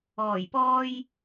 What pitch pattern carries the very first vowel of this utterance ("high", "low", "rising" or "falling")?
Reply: low